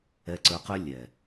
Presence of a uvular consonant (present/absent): present